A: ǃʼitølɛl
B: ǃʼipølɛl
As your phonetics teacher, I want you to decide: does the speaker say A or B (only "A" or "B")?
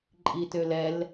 A